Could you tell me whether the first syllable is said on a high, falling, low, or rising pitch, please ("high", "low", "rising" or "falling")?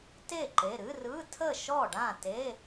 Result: falling